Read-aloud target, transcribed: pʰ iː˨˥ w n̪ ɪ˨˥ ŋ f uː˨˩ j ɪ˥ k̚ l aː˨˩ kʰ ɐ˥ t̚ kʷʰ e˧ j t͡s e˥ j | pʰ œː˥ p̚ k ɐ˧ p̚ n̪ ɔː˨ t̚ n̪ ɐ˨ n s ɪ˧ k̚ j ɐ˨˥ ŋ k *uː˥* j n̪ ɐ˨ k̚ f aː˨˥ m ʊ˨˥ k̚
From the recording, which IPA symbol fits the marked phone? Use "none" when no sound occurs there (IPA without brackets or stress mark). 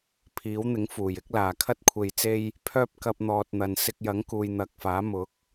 uː˨